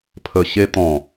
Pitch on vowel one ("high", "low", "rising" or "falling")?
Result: low